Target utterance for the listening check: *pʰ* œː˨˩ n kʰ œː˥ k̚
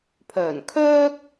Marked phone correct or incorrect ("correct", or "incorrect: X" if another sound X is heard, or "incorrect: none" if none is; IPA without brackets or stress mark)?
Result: correct